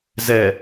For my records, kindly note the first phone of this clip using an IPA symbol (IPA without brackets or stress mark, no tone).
z